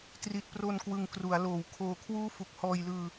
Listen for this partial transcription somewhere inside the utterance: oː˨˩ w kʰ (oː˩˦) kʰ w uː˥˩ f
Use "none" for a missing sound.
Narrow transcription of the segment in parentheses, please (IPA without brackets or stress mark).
oː˧